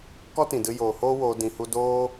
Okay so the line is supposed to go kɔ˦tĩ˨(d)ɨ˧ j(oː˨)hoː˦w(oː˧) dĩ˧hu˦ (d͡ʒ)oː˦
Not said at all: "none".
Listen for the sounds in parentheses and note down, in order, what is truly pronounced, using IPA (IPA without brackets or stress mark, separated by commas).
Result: d, oː˨, oː˧, d